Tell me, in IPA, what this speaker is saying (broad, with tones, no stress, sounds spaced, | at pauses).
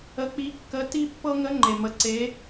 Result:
ə˧˥ k͡p i˧˥ kː ə˧˥ t i˥ pː ɤ˥ ŋ ə˧˥ ŋ͡ǃ e˩ m ə˩˧ ǀ e˩˧